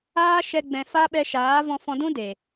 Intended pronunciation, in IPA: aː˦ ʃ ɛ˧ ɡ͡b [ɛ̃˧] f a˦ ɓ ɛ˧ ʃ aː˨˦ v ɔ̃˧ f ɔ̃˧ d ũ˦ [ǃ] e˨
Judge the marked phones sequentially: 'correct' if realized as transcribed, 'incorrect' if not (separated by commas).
correct, incorrect